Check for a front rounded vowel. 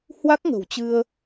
absent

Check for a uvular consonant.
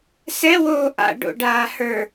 absent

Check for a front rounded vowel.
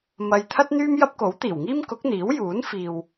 present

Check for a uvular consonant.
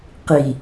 present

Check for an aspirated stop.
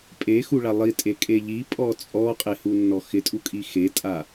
absent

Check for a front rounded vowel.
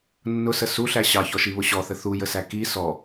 absent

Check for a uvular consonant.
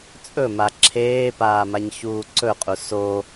present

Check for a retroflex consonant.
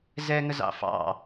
absent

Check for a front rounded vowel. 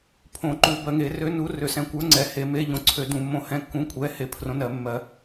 present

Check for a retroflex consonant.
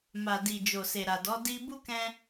absent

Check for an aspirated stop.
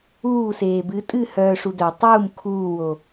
present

